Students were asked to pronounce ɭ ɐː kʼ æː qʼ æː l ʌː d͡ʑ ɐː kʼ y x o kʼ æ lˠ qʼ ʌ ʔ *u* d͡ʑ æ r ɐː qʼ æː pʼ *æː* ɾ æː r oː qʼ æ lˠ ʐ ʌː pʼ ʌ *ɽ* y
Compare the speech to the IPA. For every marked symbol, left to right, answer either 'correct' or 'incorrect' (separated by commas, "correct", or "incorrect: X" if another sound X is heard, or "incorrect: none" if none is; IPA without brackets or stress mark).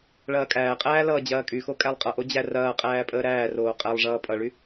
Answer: incorrect: o, incorrect: əː, incorrect: ɭ